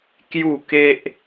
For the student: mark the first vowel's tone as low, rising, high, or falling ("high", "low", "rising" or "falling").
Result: falling